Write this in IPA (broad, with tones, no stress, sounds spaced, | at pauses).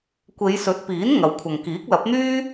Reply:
kʷ e˨˧ j s ɵ˨˥ t̚ p iː˨˥ n ŋ ɐ˨˧ w kʷʰ ɐ˨ ŋ k iː˨˥ k̚ l ɐ˨˥ p̚ n̪ yː˥